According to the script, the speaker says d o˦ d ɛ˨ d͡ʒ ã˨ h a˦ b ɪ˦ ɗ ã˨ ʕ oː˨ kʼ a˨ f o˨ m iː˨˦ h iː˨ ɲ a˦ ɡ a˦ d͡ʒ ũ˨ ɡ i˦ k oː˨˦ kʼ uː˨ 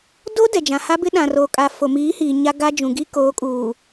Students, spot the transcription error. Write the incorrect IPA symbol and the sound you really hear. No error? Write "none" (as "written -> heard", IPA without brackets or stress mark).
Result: ʕ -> r